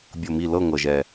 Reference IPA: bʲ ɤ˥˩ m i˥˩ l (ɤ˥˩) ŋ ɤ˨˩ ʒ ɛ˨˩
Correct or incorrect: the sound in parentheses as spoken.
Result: correct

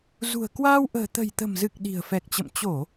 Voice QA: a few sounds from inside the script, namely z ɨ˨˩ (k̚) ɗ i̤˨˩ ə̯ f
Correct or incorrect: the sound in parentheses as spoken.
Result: correct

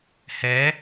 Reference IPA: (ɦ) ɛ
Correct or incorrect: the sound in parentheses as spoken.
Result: incorrect: h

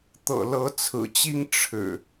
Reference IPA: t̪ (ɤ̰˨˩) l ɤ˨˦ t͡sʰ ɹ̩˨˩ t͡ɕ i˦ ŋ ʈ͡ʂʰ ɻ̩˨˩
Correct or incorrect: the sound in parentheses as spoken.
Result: correct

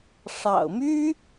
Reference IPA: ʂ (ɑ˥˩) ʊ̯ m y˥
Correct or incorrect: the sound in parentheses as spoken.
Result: incorrect: ɑ̰˨˩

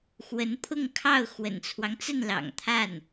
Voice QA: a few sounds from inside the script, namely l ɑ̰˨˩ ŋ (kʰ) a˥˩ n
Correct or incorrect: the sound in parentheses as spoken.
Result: incorrect: t̪ʰ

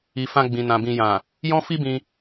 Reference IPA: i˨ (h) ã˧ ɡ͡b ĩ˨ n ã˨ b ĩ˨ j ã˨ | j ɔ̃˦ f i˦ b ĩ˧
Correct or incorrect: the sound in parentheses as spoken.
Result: incorrect: f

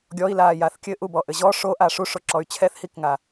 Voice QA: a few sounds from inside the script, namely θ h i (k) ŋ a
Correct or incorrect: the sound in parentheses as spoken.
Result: correct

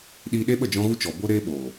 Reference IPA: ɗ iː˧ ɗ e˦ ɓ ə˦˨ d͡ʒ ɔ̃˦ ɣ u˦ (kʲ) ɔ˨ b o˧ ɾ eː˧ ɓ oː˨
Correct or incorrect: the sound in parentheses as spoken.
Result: incorrect: t͡ʃ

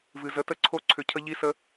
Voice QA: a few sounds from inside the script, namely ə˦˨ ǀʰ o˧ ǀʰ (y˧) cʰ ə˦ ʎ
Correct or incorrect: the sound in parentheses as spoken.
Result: incorrect: ʏ˧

